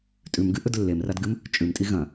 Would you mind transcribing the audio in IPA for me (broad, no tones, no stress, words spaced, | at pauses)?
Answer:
tʼʉmɡɨʔɵd lːemradɡɨm | t͡ʃʼʉmtʼi ɣɐ̃